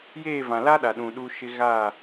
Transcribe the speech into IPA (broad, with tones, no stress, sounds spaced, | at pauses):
j eː˦˨ v ã˨ l a˦ ɗ a˨ ɗ ũ˨ ɗ u˦ ʃ ɪ˦ ɣ aː˦˨